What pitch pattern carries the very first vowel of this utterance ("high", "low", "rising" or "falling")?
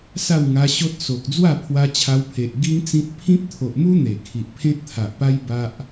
falling